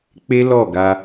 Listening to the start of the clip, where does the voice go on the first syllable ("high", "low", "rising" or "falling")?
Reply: high